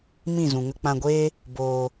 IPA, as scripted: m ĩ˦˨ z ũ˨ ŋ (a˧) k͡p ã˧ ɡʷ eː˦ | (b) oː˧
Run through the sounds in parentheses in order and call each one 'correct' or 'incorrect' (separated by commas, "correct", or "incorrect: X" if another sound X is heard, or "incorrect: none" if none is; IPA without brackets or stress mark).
incorrect: ə˧, correct